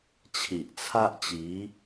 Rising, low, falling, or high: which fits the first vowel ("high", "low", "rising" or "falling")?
low